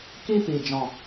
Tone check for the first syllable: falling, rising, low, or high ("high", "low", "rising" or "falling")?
high